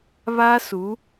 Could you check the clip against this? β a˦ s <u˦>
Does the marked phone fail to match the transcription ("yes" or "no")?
yes